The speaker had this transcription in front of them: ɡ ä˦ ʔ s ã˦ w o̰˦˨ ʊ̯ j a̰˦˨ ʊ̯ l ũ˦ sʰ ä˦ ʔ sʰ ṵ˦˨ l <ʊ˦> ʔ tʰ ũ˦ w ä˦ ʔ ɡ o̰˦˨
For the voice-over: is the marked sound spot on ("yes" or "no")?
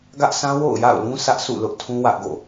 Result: yes